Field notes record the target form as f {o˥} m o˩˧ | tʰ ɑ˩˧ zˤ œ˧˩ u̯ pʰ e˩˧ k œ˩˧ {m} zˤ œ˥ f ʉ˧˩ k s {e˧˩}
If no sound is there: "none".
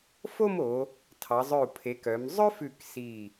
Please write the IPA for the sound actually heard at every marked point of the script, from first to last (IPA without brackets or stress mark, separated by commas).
o˥˧, m, i˧˩